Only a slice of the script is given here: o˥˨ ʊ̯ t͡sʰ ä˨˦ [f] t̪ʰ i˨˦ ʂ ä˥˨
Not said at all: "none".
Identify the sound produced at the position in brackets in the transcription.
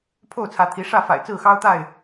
none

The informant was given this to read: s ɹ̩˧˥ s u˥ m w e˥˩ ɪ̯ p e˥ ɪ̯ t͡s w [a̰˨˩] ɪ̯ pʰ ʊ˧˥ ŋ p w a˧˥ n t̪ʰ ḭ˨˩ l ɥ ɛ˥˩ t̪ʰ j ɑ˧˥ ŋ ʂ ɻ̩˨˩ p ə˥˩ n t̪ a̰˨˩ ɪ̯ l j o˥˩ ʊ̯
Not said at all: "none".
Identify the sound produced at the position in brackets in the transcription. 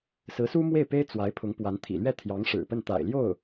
a˧˥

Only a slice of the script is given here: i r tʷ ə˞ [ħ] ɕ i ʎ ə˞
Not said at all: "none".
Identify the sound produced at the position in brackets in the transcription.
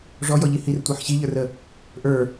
ħ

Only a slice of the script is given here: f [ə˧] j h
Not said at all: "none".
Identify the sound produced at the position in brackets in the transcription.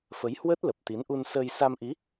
ə˨˦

